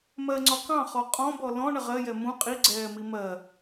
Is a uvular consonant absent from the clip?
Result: no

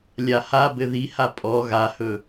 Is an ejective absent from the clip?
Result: no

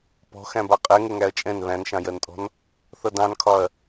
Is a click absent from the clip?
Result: yes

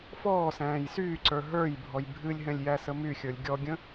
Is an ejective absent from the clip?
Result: yes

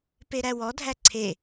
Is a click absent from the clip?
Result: no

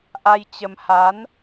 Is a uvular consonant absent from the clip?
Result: yes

